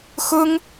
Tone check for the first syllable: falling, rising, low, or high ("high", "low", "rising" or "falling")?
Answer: high